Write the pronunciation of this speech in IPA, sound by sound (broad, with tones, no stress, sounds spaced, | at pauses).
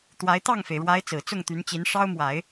t̪ w a˧˥ ɪ̯ t̪ ɑ˥˩ ŋ f e˩ ɪ̯ ɻ w a˧˥ ɪ̯ t͡s ɹ̩˨˩ t͡s ʊ˥˩ ŋ t̪ y˧˥ n t͡ɕ i˧˥ n ʂ ɑ˥ ʊ̯ m w a˨˩˦ ɪ̯